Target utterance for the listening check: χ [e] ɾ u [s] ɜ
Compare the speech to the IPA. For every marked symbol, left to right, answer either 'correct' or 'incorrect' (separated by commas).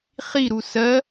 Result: incorrect, correct